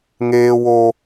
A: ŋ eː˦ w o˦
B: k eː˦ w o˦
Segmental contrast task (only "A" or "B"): A